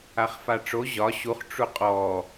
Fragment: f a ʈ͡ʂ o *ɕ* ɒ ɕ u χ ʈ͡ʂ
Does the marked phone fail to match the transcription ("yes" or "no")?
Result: yes